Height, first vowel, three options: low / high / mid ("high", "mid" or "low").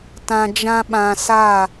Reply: low